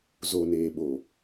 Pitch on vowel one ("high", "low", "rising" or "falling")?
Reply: low